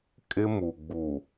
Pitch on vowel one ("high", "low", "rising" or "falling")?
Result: high